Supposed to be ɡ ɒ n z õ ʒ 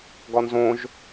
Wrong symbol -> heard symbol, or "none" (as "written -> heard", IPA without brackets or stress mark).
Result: none